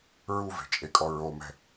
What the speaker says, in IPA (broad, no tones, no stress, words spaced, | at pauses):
ɹuve̤t͡ʃʼekʼɔ ɹomɛ̤